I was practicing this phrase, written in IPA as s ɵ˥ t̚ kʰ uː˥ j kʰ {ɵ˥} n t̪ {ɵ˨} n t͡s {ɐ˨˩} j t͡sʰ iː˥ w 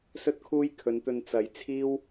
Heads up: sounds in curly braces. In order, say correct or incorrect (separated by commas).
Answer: incorrect, incorrect, incorrect